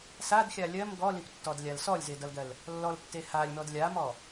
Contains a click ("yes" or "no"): no